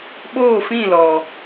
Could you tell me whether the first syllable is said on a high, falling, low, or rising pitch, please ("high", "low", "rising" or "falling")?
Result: falling